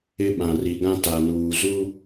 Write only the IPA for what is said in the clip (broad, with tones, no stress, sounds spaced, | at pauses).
ɪ˦ ɓ ã˨ r i˨ ɡ ã˦ t a˨ n uː˨ z u˦